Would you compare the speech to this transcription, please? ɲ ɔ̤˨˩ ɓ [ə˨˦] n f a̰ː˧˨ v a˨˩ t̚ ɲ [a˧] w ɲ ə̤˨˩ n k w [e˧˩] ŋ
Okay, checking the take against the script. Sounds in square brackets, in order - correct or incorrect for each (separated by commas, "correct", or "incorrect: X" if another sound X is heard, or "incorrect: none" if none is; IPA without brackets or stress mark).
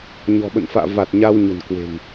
incorrect: ə̰˧˨, correct, incorrect: e̤˨˩